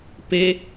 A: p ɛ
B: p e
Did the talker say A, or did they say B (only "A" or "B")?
B